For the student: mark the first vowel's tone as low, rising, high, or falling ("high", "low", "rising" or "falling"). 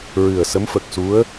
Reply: low